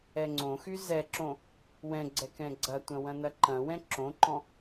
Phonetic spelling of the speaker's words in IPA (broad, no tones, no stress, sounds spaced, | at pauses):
ɛ ŋ͡ǀ õ x y z ɛ ǁ õ | w ɛ̃ ɡ͡ǀ ɛ k ɛ̃ ɡ͡ǀ ɐ tʷ ɐ̃ w ɐ̃ n ɐ ǃ ɐ̃ w ɛ̃ ǁ õ ǃ ɔ̃